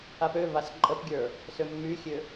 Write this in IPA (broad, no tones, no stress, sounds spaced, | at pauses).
a p ø v a s ǃʼ ə p ɡʲ ə˞ | s ø mː y xʲ ø